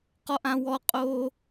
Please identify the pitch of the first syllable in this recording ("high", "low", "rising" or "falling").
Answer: high